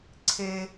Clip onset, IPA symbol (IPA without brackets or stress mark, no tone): ǀʰ